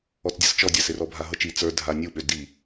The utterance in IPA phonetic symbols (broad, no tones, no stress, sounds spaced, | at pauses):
ɔ t͡s dʲ ɤ s t͡ʃ ɔ dʲ a s ɪ r ɔ bʱ a ɦ ɤ t͡ʃ i t͡s ə˞ dʱ a nʲ u ɓ ø d i